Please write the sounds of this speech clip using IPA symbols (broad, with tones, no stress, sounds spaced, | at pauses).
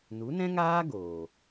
n u˨˦ n ɛ̃˦ ŋ aː˦ ɡ oː˨